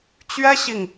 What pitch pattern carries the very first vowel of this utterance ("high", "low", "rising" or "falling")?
high